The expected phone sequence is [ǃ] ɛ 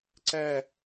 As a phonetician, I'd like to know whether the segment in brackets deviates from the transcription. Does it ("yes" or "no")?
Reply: yes